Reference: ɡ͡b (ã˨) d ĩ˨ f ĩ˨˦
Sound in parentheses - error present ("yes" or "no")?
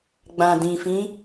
no